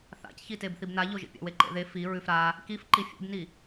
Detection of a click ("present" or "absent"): present